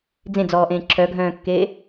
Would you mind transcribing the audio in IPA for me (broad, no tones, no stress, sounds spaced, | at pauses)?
d͡z ẽ d͡z ɔː ʔ ẽː ǁʰ œ ɡʱ œ̃ː kː eː